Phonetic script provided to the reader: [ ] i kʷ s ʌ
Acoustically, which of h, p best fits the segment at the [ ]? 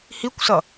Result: h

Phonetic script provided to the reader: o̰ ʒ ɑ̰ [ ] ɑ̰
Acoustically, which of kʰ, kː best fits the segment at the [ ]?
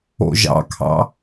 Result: kʰ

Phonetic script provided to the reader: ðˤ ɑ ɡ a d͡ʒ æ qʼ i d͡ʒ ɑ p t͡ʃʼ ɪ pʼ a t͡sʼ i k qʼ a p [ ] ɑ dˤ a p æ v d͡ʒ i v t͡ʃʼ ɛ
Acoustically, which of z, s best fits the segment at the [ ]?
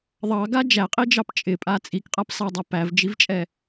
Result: s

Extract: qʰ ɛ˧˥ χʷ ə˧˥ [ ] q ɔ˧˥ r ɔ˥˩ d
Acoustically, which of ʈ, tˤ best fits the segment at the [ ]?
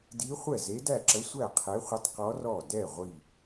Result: tˤ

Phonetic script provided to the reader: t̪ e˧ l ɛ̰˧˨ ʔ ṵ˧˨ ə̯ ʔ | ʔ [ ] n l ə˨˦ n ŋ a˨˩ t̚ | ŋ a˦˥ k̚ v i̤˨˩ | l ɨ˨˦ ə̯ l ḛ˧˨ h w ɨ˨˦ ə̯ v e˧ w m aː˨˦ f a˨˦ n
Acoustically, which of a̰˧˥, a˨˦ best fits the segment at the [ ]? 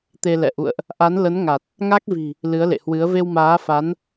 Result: a˨˦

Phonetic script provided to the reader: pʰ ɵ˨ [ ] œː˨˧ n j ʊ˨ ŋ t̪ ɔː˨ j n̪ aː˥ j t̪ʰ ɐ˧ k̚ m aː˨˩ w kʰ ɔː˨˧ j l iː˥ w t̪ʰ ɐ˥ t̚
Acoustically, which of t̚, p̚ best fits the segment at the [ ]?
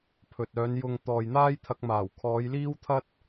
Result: t̚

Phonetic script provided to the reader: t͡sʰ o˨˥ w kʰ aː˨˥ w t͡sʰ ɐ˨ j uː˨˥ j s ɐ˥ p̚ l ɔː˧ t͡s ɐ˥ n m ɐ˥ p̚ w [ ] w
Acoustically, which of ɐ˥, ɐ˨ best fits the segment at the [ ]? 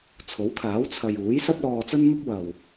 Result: ɐ˨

